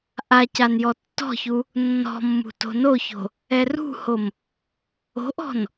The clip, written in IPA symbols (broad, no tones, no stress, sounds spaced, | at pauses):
ʔ a c a n j ɔ tː ɔ̤ ç u | nː ɔ̤ mː ṳ t o̤ n o ç o̤ | ɛ r ṳ h o m | o̤ ʔ ɔ̤ n